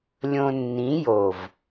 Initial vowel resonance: nasal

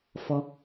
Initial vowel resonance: oral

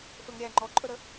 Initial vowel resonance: oral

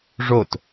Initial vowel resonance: oral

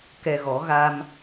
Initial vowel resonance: oral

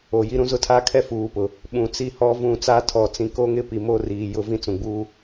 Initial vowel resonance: oral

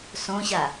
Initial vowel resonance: nasal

